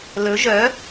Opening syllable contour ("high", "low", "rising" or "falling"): rising